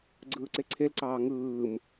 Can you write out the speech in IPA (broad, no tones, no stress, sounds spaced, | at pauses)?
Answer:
ɡ͡ǀ ɯː ǀ e ǀʰ e l ǀ ɑː ŋ ɯː m